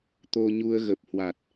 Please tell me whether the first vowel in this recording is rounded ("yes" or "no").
yes